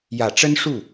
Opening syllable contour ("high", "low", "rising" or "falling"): low